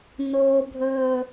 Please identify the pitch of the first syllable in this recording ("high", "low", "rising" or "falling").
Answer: low